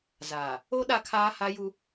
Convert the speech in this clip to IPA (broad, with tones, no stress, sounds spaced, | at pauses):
z aː˨ | o˦ ɗ a˦ kʰ aː˦ h a˦ j u˦